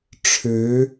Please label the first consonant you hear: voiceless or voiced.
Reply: voiceless